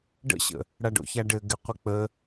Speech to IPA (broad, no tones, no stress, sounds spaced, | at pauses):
ɖ ə̰ ɕ ə̰ | ɽ a ɖ o̰ ç a ɖ ɘ ɡ ɪ qʷ ɪ k͡p ə